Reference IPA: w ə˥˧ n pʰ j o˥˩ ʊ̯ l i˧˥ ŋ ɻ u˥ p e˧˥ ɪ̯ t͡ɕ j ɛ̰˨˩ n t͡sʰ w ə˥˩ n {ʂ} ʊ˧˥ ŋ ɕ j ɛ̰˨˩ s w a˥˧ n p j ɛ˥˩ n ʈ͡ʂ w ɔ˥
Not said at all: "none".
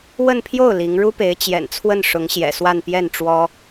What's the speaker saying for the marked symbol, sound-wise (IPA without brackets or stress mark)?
ʂ